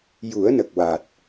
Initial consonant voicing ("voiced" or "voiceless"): voiced